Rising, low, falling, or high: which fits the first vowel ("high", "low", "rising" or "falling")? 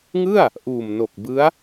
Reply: falling